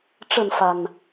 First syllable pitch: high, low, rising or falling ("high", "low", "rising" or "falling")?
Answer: falling